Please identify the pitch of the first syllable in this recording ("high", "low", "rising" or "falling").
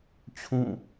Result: falling